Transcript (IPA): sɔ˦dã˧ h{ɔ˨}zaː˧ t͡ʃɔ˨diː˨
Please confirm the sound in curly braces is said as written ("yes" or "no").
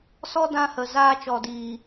no